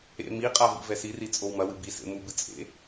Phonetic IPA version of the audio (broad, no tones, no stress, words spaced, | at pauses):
ḛ miqʼa vḭvɛsiri t͡sʼowmɐwɨ bisḛ mubɨ t͡sʼḛ